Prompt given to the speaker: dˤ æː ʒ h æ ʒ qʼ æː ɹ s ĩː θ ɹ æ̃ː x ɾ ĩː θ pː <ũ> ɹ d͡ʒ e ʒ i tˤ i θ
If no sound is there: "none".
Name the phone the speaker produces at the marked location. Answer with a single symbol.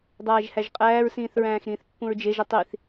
ũ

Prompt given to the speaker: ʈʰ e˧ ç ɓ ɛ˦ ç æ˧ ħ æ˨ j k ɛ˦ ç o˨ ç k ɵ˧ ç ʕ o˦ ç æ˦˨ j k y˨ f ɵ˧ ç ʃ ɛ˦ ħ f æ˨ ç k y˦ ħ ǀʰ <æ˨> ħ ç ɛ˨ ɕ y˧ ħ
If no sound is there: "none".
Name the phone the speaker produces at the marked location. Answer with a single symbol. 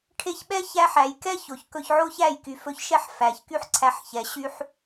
æ˧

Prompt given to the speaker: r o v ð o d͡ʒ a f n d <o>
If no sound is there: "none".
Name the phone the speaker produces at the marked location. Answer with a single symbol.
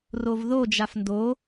o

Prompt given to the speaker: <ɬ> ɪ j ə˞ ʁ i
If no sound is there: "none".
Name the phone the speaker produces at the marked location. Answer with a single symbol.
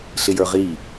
ɬ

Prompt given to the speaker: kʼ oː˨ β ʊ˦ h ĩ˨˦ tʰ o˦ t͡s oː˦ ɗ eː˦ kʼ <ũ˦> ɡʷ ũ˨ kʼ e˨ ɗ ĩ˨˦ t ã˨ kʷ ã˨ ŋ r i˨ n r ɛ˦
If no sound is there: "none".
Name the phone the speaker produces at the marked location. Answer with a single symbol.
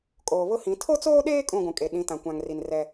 ũ˦˨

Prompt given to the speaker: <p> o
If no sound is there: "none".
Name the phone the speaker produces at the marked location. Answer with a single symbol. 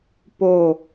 p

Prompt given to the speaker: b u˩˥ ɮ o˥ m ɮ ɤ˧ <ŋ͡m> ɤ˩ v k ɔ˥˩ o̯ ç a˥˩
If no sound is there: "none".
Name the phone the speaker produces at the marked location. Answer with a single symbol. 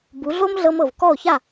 m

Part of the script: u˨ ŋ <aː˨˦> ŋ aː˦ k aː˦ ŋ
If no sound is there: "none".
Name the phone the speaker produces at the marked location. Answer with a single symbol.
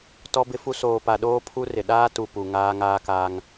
aː˦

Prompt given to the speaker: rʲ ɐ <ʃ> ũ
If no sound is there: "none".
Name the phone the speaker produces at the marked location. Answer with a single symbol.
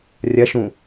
ʃ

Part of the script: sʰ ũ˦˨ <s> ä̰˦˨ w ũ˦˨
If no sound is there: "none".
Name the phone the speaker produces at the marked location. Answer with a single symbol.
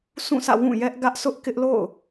s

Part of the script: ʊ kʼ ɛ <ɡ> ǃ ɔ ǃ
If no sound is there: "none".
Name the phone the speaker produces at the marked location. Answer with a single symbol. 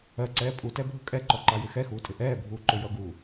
none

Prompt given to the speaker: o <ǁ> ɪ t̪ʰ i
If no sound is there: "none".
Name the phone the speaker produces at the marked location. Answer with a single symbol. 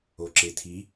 ǁ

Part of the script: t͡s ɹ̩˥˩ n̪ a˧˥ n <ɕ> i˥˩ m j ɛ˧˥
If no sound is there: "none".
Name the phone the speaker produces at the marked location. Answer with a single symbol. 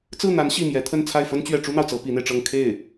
ɕ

